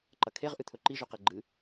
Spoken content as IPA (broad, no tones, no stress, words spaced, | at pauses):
ǃɐkʰeʁ ʔɨt̪ʰɵǃi ʒʉqeɡ͡ǃɨ